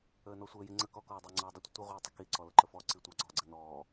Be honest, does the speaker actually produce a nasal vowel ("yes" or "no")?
no